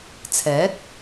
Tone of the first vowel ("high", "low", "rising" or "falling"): rising